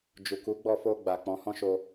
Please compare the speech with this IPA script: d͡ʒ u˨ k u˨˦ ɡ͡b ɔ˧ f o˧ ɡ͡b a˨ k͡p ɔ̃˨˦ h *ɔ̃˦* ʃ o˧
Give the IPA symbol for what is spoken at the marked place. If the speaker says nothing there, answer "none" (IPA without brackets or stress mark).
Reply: ɔ̃˦